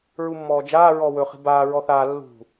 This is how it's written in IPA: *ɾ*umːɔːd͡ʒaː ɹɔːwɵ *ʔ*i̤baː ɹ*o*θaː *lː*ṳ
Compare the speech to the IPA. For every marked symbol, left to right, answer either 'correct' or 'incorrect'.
incorrect: ɹ, incorrect: χ, incorrect: ɔ, correct

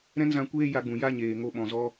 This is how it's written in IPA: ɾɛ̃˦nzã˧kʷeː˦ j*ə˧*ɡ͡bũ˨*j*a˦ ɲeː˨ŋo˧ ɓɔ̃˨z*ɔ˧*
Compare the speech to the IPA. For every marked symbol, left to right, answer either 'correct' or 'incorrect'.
incorrect: a˧, correct, correct

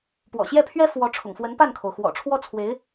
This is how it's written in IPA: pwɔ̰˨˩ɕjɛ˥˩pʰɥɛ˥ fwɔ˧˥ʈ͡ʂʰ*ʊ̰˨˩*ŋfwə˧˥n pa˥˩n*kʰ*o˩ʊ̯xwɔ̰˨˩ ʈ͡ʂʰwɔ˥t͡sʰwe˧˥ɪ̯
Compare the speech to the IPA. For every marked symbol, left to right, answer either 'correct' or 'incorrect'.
correct, correct

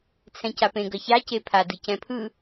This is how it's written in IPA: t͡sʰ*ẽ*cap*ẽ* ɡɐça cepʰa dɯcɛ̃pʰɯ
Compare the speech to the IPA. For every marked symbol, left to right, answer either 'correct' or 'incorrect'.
incorrect: ɛ̃, correct

